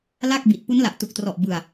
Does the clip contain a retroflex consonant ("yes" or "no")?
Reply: no